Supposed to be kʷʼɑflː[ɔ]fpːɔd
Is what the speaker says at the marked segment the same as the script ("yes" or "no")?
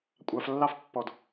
no